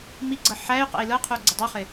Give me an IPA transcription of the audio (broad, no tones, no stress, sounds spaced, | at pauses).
m i ɡ͡ǀ ɤ ħ æ y̯ q ɛ̰ i̯ l ɤ qʰ u ɡ͡ǀ ə dˤ u χ ɪ